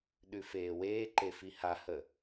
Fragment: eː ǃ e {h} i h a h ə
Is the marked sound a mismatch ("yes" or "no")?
yes